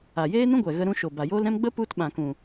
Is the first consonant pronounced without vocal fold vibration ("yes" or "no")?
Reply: no